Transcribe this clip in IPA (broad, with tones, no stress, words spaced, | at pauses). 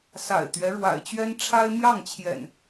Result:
sa̰˨˩ɪ̯t̪ɥɛ˦ ɻwa̰˨˩ɪ̯t͡ɕɥɛ˦n ʈ͡ʂʰa˦ɪ̯mjɑ˥˨ŋt͡ɕʰjɛ̰˨˩n